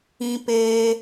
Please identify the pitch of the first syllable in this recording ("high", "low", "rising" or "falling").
high